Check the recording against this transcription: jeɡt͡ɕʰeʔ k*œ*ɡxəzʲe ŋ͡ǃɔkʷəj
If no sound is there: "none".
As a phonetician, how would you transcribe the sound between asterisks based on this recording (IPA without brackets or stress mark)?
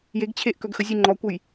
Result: œ